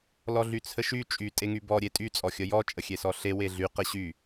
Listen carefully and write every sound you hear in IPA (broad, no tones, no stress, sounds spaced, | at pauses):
l ɔ ɮ y t͡sʰ ə ʃ y t͡ʃʼ y tʼ e ŋ y b ɔ ɾʲ e tʼ y t͡sʼ ɔ xʲ ə j ɔ t͡ʃʼ ə xʲ e s ɔ ɬ e w e ɮ y q ə ɕ y